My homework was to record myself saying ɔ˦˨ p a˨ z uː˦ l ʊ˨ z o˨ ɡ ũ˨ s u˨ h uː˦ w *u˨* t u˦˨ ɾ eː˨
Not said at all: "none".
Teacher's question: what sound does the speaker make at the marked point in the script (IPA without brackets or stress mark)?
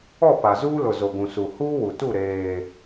u˨